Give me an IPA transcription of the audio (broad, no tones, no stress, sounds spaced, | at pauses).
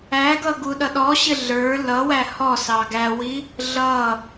æ ɡ ʌ ɡ u ɗ ʌ ɗ ɔ ɕ ɪ ɮ ə˞ l ʌ w æ h ɔ s ɑ ɡ æ w i | ɮ ʌ